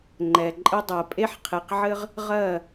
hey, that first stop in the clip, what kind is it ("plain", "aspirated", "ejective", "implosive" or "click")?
click